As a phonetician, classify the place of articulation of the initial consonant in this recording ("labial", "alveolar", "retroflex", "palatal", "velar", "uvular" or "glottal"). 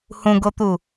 glottal